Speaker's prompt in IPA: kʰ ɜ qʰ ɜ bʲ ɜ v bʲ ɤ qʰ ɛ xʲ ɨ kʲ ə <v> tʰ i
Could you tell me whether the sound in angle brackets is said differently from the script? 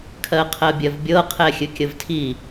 no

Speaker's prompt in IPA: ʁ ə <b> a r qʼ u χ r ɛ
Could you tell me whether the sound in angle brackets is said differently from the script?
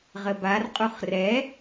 no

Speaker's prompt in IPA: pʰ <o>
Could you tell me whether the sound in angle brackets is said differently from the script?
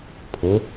no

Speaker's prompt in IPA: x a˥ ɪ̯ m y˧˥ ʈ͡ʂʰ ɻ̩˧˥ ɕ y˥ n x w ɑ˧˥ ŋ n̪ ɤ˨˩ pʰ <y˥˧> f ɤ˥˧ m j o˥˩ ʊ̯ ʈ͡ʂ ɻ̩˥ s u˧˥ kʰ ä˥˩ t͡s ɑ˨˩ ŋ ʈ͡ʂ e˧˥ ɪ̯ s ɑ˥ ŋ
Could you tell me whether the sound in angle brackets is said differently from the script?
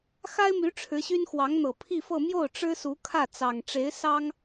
yes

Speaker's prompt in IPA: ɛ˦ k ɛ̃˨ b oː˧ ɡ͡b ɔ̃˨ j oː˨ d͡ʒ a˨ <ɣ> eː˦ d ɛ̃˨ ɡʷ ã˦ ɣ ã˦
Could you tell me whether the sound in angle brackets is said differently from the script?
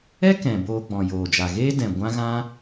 no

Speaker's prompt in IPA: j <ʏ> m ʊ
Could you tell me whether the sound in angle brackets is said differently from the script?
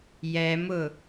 yes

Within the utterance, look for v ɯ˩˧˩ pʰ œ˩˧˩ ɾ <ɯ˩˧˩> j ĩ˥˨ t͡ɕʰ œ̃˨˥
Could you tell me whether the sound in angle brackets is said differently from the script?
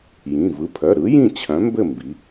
yes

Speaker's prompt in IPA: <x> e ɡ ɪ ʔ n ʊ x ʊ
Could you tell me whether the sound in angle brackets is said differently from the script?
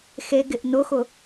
no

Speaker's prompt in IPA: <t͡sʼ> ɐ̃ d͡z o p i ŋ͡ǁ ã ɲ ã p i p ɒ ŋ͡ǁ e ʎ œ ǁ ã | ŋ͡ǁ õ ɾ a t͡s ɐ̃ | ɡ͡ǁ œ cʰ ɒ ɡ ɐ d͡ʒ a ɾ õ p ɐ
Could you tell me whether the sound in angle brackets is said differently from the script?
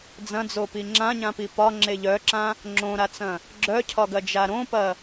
yes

